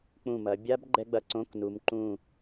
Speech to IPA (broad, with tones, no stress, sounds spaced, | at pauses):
k͡p ũ˧˩ m ɐ˩˧ bʲ a˦˥ b ɡ͡ǃ ɛ˦˥ ɡ͡b ɐ˩˧ ǀ õ˧˥˧ k n u˩˧ m ǃ ũ˧˩